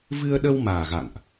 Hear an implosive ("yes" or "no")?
yes